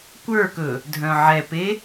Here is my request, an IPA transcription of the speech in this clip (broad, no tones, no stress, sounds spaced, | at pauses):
kʷ ə˞ k ɵ | dʱ œ̃ ʕ ɛ p e